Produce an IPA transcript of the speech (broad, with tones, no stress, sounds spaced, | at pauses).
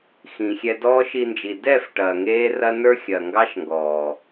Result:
x ĩ˨ xʲ ɛ˧ d ɔː˦ ʃ i˧ n d͡ʒ i˨ d ɛː˦˨ f ʈ ɐː˨ ŋ eː˦ r ɐ˦ n ə˞˦ xʲ ɐː˨ ŋ ɡ ɑ˦ ʃ ŋ ɡ ɔː˨